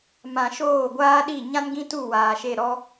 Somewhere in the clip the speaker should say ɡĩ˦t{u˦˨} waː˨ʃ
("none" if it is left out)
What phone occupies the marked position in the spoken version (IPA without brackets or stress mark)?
u˦˨